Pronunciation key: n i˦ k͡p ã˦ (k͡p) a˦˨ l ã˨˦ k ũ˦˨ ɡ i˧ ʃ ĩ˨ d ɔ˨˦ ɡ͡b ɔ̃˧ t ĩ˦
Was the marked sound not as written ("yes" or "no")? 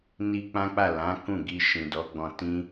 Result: no